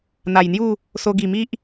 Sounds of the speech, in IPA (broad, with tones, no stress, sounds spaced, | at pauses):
n̪ a˨˩ j n̪ j u˥˧ | s o˧ ɡ i˨˩ m i˦ ʔ